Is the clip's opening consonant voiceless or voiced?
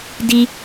voiced